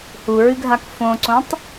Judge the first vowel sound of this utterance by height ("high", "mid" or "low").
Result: high